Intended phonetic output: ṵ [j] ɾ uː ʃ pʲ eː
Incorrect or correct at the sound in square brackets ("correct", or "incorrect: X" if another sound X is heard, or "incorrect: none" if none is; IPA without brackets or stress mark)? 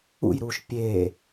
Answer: correct